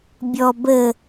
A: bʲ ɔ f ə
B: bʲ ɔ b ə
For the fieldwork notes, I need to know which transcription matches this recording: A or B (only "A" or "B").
B